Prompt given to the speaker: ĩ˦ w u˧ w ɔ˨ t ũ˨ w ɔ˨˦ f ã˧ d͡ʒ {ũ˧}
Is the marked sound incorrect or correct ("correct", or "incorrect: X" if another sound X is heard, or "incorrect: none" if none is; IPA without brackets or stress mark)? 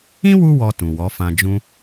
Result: incorrect: ũ˦